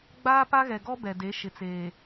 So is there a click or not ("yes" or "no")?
no